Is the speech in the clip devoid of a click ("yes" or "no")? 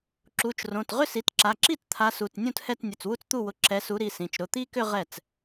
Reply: no